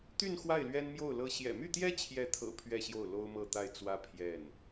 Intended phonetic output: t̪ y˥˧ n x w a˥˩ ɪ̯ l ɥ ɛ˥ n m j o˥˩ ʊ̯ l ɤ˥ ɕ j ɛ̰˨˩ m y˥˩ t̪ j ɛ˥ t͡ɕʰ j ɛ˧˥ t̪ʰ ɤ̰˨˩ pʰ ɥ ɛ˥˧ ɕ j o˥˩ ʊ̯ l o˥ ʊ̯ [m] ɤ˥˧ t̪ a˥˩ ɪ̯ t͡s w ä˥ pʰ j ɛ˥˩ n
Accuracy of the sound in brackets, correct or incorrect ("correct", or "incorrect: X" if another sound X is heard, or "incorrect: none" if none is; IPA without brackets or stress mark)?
correct